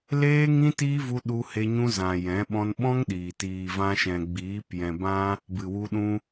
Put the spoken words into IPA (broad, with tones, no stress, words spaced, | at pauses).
leː˦ŋĩ˦ tiː˦vu˧ ɗu˧ he˧ɲũ˧zã˨ jɛ̃˨˦ ɓɔ̃˧nɓɔ̃˦ŋɗiː˨ tiː˨vã˧ʃɛ̃˨ɡ͡biː˨˦p jɛ̃˨bã˧ | bɨ˨wu˧ɗũ˧